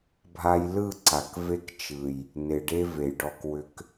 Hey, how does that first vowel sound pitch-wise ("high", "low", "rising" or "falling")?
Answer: high